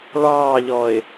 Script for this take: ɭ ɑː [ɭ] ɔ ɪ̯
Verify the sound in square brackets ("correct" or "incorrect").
incorrect